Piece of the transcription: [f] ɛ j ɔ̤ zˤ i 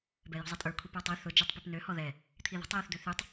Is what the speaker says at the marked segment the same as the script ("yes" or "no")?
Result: no